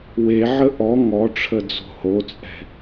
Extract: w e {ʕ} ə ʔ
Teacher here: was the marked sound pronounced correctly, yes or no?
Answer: yes